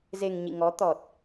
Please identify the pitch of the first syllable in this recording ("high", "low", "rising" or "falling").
low